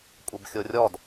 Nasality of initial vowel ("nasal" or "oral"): oral